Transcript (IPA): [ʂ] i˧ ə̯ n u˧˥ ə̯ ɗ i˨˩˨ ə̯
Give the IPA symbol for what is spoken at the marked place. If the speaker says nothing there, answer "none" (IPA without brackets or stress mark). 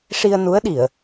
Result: ʂ